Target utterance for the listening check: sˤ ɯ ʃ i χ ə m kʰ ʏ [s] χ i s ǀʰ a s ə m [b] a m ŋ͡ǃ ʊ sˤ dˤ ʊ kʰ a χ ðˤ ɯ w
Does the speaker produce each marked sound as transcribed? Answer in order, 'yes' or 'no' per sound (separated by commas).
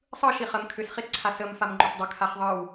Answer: yes, no